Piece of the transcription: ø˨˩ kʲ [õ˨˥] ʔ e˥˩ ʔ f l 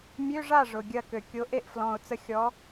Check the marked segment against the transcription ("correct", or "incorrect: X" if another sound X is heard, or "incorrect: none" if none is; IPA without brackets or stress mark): incorrect: o˨˥